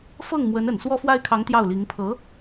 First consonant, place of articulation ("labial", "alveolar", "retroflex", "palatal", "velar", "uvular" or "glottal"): labial